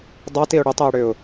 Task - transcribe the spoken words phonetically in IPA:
dˤ a t i ʊ̯ ɽ ʏ tˤ e ʊ̯ ɽ ʏ ʊ̯

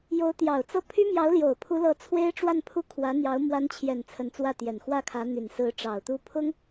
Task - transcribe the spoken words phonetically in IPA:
j o˧˥ ʊ̯ t̪ j ɑ˨˩ ʊ̯ t͡s ɤ˥˩ pʰ y˥ m j ɑ˧˥ ʊ̯ l j o˨˩ ʊ̯ pʰ u˧˥ l ɤ˧˥ t͡sʰ w e˥ ɪ̯ ʈ͡ʂ w a˥˧ n pʰ u˥˩ kʰ w ä˧˥ n̪ j ɑ˧˥ ʊ̯ m w a˧˥ n t͡ɕʰ j ɛ˨˩ n t͡sʰ ə˧˥ n t͡s w ä˥˩ t̪ j ɛ˨˩ n x w ä˥ kʰ ä˧˥ n̪ y˨˩ n s ɹ̩˧˥ ʈ͡ʂ ɑ˨˩ ʊ̯ t̪ u˥˩ pʰ ʊ˥ ŋ

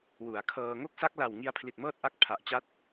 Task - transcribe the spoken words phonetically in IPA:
w u˩˦ a̯ kʰ ɤː˧ ŋ o˥˩ k̚ s a˦˥ k̚ l a˨˩ w ŋ i˧ a̯ pʰ l i˨˩ t̚ m ɤː˥˩ t̚ ʔ a˥˩ k̚ pʰ a˨˩ ʔ t͡ɕ a˥˩ t̚

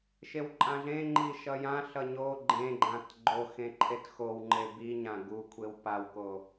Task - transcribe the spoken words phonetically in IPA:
ʃ e w ǃʼ ã ɮ ẽ ŋ͡ǃ i ʃ ʌ j ã ɬ ʌ ɲ o ɡ͡ǃ ẽ ɡ͡ǃ ã t ɡ͡ǃ o x ẽ ǃʰ e t x o w ŋ͡ǃ e b i ɲ ã ɡ u kʷʰ e w p a w k o

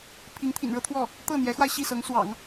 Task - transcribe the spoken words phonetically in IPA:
pʰ i˧˥ ŋ t̪ʰ ḭ˨˩ n ɻ ɤ˥ t̪ʰ w ɔ˥˩ | t̪ ɤ˥˩ n̪ j ɛ˧˥ x w a˧ ɪ̯ ɕ i˥˩ s ɤ˧˥ ŋ s w ɑ̰˨˩˦ ŋ

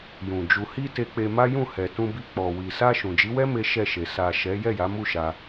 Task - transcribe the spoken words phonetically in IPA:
j ũ˨ d͡ʒ u˨ h i˧ t e˧ k͡p e˧ m a˦ j ũ˦˨ h ɛ˨ t ũ˧ b i˧ k͡p ɔ˨ w i˨ s a˧ ʃ ũ˨ d͡ʒ i˨˦ w ɛ˦ m e˦ ʃ ɛ˦˨ ʃ e˨ s a˨ ʃ ɛ˨˦ j ɛ˦˨ j a˨˦ m u˦˨ ʃ a˧

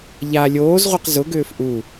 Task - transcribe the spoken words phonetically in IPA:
ʎ a lʲ oː z ʁʷ ɛ q z ʊ ɡ ʏː f ʔ u

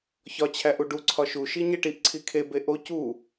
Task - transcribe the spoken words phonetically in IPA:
ç ɒ t͡ɕʰ æ ʔ u ɖ u ǀʰ ɒ ʃ u ʃ i ɲ e ʈ i ʔ ǀʰ i kʰ e b e ʔ o c u

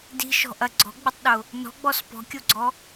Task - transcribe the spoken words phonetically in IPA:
d i̤ ʃ ɔ̤ ʔ ɐ ɡ͡ǀ ɔ̤ ɡ͡b ɪ tˤ ɗ ʊ | n ɔ̤ ɡ͡b ɔ s p ɔ̤ kʲ o ɡ͡ǀ ɔ

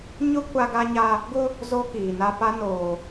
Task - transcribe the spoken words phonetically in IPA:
ɲ ʊ˦ kʷ a˦ ɡ a˦ ɲ a˦ | ɡ ʊ˦ | z o˦ k iː˨ n a˦ p a˦ n oː˨

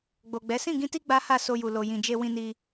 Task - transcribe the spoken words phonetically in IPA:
ɡ͡b o˨ ɡ͡b ɛ˨˦ s ĩ˦˨ ɡ ĩ˧ t i˦ ɡ͡b a˦ h a˦˨ s o˧ j u˨ l o˨ j ĩ˨ d͡ʒ e˧ w ĩ˧ n i˧

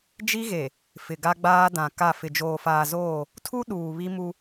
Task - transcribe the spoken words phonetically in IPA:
d͡ʒ i˦ ɣ e˨ | f ɪ˨ ɡ a˦ ɡ͡b aː˦ d ã˨ k a˦˨ f ɪ˨ d͡ʒ oː˨ f aː˨ z oː˦˨ | tʰ u˦ ɗ uː˨ β i˦ m u˦

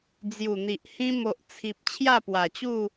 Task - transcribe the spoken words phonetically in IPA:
d͡z j u˨˩ n̪ i˨ ʔ h ĩ˧ m o˨ ʔ t͡sʰ i˨ p̚ t͡ɕʰ j a˥˧ p w a˨˩ t͡ɕ u˥˧

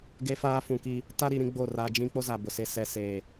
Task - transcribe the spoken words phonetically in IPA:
ɡ e˦ f aː˦ f ũ˨ k i˦ | t a˦ ɾ i˨ ɾ ĩ˦ ɡ͡b o˦˨ r a˦ d͡ʒ ĩ˦ k͡p o˦ z a˨ b ʊ˨ s e˦ s ɛ˨ s eː˨

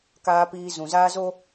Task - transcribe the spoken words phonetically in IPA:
k aː˦ p iː˦ z ũ˨ z aː˦ z o˦

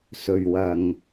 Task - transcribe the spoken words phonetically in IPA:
s ɵ˨˩ ɥ w ɐ˨˩ ŋ

